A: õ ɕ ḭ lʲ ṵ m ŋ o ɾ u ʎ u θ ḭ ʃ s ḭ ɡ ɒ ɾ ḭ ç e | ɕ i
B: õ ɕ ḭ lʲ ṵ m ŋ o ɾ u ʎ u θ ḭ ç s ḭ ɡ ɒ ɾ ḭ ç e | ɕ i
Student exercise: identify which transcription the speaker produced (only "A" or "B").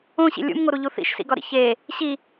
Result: A